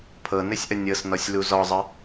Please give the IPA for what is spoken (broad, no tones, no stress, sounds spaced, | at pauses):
pʰ ɤ n ɘ sʲ ʔ ə nʲ ɤ s n ɔ sʲ l u z ɔ zˤ ə